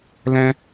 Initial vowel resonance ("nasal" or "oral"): nasal